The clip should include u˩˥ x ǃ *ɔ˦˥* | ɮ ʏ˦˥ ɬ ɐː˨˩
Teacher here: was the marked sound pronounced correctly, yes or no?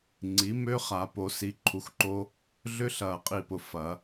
no